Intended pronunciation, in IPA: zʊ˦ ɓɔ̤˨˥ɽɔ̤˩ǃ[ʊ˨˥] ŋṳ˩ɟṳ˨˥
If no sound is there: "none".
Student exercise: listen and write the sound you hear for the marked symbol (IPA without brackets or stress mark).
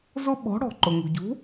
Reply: ʊ˩